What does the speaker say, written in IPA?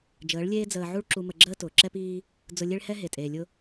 d͡ʒəː˨˦ɭlʲeː˦ d͡zəː˧ʕu˦ɭ ǁu˧mə˧ɡ͡ǁəː˦ tʊː˨ǁɛ˦piː˦ | d͡zʊ˧lʲe˦ɭhɛ˦ ɦe˨tʼeː˨lʲʊ˦

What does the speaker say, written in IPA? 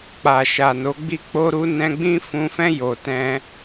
k͡pa˨ʃa˨ no˨˦ɡ͡bi˦k͡po˦ ɾu˦nɛ̃˦ ɡ͡bĩ˦fũ˧fɛ̃˦ jo˧tɛ̃˦

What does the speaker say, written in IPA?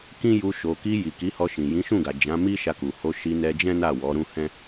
kĩ˦ju˧ ʃo˨ki˧ ji˨ki˨˦hɔ˧ʃĩ˨ jĩ˨˦ʃũ˦˨ɡa˨ d͡ʒã˨˦mi˦ʃa˧ku˨ ho˧ʃi˧nɛ˧d͡ʒɛ̃˦ na˦˨wɔ˨˦ɾũ˦ hɛ̃˦

